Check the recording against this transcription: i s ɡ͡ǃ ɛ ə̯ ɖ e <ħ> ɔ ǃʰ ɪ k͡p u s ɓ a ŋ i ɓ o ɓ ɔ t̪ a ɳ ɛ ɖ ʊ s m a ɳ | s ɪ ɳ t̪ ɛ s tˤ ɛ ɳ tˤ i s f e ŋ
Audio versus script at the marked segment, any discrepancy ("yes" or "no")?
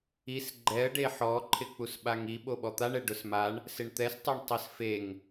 no